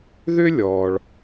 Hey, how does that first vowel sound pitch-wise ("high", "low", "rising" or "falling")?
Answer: high